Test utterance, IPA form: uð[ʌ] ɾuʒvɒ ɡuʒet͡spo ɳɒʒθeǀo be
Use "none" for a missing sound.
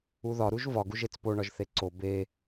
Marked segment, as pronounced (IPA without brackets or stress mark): ɒ